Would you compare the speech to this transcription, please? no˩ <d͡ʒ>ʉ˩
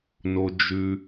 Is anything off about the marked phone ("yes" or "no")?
no